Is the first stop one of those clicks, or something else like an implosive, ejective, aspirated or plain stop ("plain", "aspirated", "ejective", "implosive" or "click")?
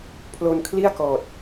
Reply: aspirated